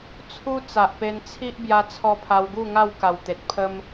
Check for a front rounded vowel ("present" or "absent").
absent